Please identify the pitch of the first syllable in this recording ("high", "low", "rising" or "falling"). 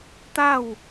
falling